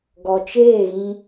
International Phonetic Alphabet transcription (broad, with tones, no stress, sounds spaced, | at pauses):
ɡ ɔ˨ t͡ʃ eː˦˨ ɣ ĩ˧